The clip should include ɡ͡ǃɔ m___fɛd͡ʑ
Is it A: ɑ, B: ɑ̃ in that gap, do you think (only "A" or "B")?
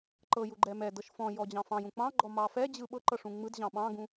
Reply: A